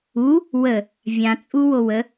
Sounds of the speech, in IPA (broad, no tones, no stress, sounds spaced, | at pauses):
u | w ə | vʲ ã t͡sʼ u w o w ə